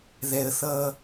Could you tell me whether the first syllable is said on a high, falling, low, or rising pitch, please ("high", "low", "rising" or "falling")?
high